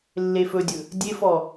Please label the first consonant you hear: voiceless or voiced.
voiced